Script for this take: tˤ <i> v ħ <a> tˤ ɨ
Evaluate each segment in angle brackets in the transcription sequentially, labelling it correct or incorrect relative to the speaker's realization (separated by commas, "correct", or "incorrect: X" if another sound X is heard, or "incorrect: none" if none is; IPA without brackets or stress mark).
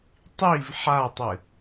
correct, correct